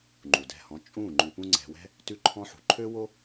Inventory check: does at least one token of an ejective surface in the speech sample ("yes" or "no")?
yes